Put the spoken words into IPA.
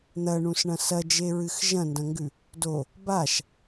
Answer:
n̪ ɐ ɳ ũ s ɳ ɐ̃ s ɐ d͡ʒ e ɹ ɨ x ʒ ɐ̃ n d ɐ̃ ŋ ɡ ʉ | d o | b a ʃ

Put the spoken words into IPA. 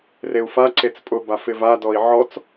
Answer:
r e u̯ f a ǀ e t͡s pʼ ʊ b a f ɪ v a d ɔ i̯ ʕ ɔ t͡s

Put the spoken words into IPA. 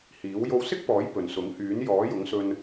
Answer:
h iː˨˥ w j o˧ w s ɪ˥ k̚ p ɔː˨˥ j p ɵ˨ n s ʊ˨˥ ŋ h yː˨˥ n j ɔː˨˥ j ʊ˨˥ ŋ s ɵ˧ n

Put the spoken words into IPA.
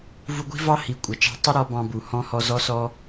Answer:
v u˧ ɡʷ i̤˦ v ɑ˦ h i˨ kʷʼ ʌ˨ t͡ʃ ɑ̤˦ tˤ ɪ˦ ɾ ɔ˧ b ɑ̃˧ b u˨ h ɔ̃˦ h ɔ˦ z ɔ˦ s ɔ˦

